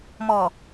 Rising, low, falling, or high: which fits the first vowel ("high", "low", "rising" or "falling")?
low